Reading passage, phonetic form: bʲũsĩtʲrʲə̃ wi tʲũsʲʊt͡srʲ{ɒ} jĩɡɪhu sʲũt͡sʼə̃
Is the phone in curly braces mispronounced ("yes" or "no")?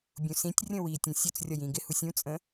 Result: no